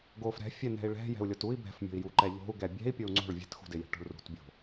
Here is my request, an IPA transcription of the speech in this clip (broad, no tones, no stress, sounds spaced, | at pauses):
ɡ o f ɾ ɛ̤ fʲ ɛ n ɛ̤ i̯ ɭ ɛ̤ j ɛ̤ u̯ lʲ o t u i̯ b ɛ̤ f mʲ o̤ i̯ j u ǃ ɛ ʎ o̤ u̯ ɡ ɛ bʲ ɛ̤ i̯ pʲ o u̯ ŋ͡ǀ o̤ ɭ vʲ ɛ̤ t x ṳ d ɪ j ɛ̤ ʈ o̤ ɭ r ṳ t bʲ o̤